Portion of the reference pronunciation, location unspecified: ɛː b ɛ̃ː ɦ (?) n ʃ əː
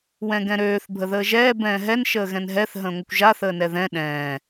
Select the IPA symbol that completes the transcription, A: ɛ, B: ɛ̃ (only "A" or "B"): A